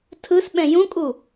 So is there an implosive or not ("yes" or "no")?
yes